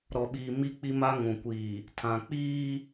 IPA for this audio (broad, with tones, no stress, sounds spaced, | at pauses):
ɾ ɔ˨ ɓ iː˨ m i˦ k͡p i˦ m a˦ ŋ ũ˨ kʷ iː˨ | tʰ ã˨ k͡p iː˦